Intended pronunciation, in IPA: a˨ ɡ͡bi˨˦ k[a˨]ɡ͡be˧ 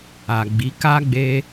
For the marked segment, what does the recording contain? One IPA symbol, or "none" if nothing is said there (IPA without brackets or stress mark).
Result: a˦